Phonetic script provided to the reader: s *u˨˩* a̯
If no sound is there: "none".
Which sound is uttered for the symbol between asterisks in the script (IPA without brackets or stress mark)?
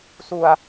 u˨˩